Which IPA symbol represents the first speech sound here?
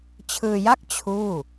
t͡ɕʰ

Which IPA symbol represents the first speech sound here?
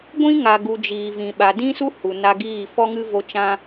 ɡʷ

